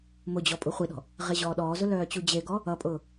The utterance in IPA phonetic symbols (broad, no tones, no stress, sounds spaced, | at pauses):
m ʊ d͡ʑ ɔ pʼ u χʷ i ɗ ɔ̤ | ʁ e ʑ ɔː ɗ ɔː z ʊ l œː t͡ɕ u d͡ʑ e ɡ ɔ | ʌ pʼ ʊː